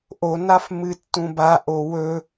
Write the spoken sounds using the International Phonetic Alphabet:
ʔonaf mɨtːũbaʔo wɵ

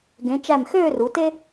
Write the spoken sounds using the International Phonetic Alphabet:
ɡẽ˩˧t͡ʃæ˧˩m xøː˥˧ru˩˧te˥

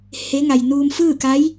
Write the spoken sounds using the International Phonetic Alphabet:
he˧˥ŋa˩j nuː˧mfɯː˥˨ka˧˥j

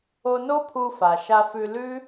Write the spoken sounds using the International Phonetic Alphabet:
o˧no˦pʰu˧fa˨ ʃa˧fʉ˧lʉ˦

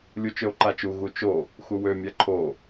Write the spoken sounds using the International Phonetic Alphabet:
lʲut͡ʃøo̯ǃat͡ʃu ɣut͡ʃo | xuwø mʲaǃʰo

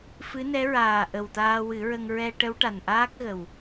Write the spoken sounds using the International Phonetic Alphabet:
fɨ˧˥nɛ˧˥ ɹaː˨˩ ʔə˨˩wt̪aː˧wɨ˨˩˦ɹə˧ŋ ɹɛ˧ʈə˧˥w ʈa˨˩nʔaː˦˥k̚ɣə˨˩w

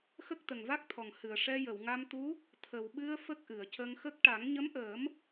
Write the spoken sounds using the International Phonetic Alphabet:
xə˦˥k̚t̪ə˨˩ŋva˦˥k̚t̪ʰɔ˨˩ŋ hɨ˨˩ə̯ ʂɛ˧jə˨˩˨wŋa˧mt̪u˧˥ | t̪ʰə˨˩wɓɨ˧ə̯ fə˦˥k̚ʔɨ˨˩˨ə̯cə˧ŋxə˦˥k̚ ʈa˨˩˦ŋɲə˧˥mʔəː˨˩˦m

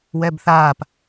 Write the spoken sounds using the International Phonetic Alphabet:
wɛbθaːp

